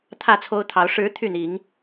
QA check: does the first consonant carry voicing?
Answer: no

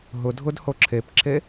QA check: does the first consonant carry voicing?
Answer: yes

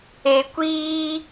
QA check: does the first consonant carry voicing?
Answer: no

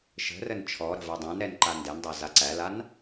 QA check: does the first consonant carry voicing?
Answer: no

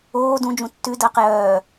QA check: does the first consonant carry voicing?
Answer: yes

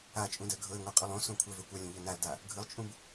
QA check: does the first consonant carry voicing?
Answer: no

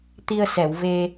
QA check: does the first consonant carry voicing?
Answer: no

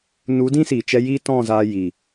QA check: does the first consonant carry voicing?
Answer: yes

